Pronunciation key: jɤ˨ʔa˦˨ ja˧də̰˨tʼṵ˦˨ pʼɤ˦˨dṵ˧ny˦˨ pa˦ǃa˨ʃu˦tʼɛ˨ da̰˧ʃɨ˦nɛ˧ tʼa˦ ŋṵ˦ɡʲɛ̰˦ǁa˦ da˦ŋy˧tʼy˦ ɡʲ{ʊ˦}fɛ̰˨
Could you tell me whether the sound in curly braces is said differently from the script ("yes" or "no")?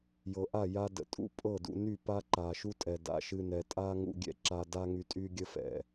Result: yes